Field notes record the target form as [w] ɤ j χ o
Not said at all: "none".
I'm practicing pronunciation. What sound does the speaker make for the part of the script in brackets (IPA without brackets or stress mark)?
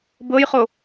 b